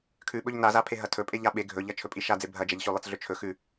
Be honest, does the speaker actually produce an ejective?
yes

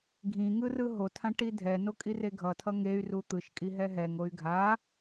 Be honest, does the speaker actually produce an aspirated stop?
yes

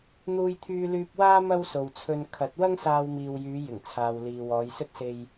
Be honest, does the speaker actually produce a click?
no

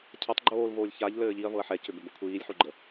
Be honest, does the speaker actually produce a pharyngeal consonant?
yes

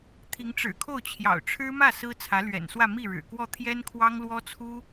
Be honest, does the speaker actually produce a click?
no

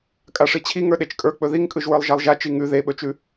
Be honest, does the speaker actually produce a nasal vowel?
no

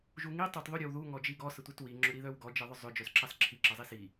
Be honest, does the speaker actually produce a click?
yes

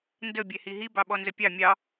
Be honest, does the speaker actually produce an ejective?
no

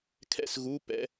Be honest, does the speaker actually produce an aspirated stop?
yes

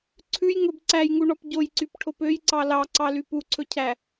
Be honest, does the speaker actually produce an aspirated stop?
yes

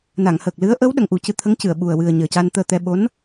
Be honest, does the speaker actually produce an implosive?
yes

